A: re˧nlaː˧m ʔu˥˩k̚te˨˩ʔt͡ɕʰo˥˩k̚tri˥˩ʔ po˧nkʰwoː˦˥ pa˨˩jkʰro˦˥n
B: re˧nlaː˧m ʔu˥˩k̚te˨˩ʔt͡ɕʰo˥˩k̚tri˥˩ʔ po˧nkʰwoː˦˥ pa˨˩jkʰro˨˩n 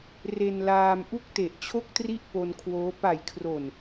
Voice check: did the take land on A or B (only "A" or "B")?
B